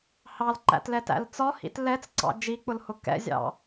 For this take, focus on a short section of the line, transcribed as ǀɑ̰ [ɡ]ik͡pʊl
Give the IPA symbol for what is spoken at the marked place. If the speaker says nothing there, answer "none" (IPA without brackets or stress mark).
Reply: d͡ʒ